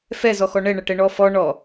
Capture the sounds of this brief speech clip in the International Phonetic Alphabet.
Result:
f ɛ z ɔ x ɔ ɳ ɛ ɳ ɐ ʈ ɛ ɳ ɔ f ɔ ɳ ɔ

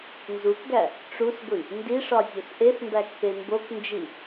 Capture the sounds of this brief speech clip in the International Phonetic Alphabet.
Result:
n z u k ɡ æ | ʈ͡ʂ u s ɡʷ i | n d i ʂ ɒ zʲ o s ʔ e s m b æ k p e m b o k n d͡ʒ i

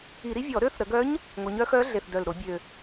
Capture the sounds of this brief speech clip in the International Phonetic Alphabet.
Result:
i˧˩˧ ɾ i˧˥ vʲ ɔ˧˩˧ ɾ ø˧˥ θ ɾ ə˩˧ ɡ œ˧˥ ɲ | ŋ o˩˧ ɲ œ˧˥ x œ˧˥ ɮ e˨˩ θ d œ˨˩ l ɾ o˧˩˧ bʲ ø˨˩

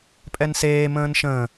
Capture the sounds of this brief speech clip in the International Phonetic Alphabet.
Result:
pʼ ɛ n s eː m ə̃ː n ʃ ə̃ː

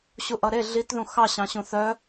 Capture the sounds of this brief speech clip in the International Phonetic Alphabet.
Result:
ɕ u ʔ ʌ ɾ e ɮ i t ð ũ x ɑ ɕ ɑ̃ ɕ ũ θ œ

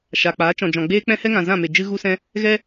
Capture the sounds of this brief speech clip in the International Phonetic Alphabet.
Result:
ʃ a˨ k͡p aː˨˦ t͡ʃ ɔ̃˨ d͡ʒ ɔ̃˨ ɡ͡b eː˦ k͡p ɛ̃˦ h ɛ˦ ŋ ã˨ z ã˦˨ m e˨ d͡ʒ ɨ˧ ɣ u˧ s ɛ̃˧ | ɣ ɛ˦

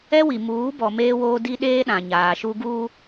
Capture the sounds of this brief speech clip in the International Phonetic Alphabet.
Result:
ɛ˦ w i˨ m uː˨˦ b ɔ˨ m eː˦ w oː˦ d i˦ ɗ eː˦ ɗ ã˨ ɲ aː˨ ʃ u˦ ɡ uː˦

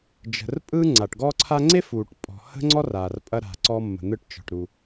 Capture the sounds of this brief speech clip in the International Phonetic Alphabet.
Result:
d͡ʒ ə̤˩ r pʼ ɯ˧ ŋ͡ǀ a˩ ʈ ɡ ɔ˥ ǀʰ a˥ ŋ͡ǀ e˥ f uː˩ ʈ pʼ ɔ̤˩ h ə̤˧ ŋ͡ǀ ɔ˧ r a˩ r pʼ ɐ˧ ɾ a̤˩ ǀ ɔ˧ mː ə̤˩ n̪ ɯ˧ ʈ t͡ʃ ɔ̤˩ ʈ ɾ u˩

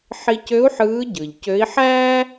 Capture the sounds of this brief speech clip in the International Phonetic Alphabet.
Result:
ħ i˧ c ø˧˥ u̯ ħ ɯː˧˥ ɟ ɯ˩ ʎ c ø˧˥ i̯ ħ æː˥

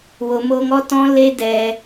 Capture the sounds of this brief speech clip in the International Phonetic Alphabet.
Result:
w o˧ m oː˧ ŋ ɔ˦ t ɔ̃˦ l e˦ d ɛ˧

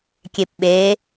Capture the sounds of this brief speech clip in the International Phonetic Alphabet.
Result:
kʲ e p ɓ e

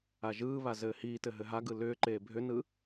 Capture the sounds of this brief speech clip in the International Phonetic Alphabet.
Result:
a ʒ ɯː β a z ɘː h iː t ɘ ɦ ɘ ɦ a ɡ ɯ l ʏː ǃ eː bʱ ʏ n ɯ

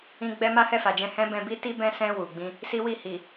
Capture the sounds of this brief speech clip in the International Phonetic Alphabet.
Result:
ĩ˧ ɡ͡b ɛ˧ m a˦ h ɛ˦˨ f a˨ d͡ʒ ɛ̃˧ h ɛ̃˦ b ɛ̃˧ b i˦ t i˦ b ɛ̃˦ s ɛ̃˧ w u˨ ɡ͡b ĩ˧ | s i˦ w i˦˨ h i˨

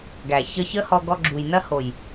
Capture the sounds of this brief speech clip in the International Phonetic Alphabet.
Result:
ɡ æ˨ ç ə˧ ç ə˦ h ɔ˧ ɡ ɔ˧ ɡ͡ǁ u˨ j n ɐ˦ h o˨ j

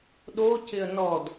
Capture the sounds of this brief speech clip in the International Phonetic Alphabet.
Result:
ɗ o c ɪ ə̯ n ɔ d

